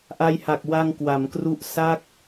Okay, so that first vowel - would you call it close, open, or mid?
open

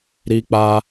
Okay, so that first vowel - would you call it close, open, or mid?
close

